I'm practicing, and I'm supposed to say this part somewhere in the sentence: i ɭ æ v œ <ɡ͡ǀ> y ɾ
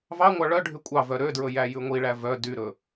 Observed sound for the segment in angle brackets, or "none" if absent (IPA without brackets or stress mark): d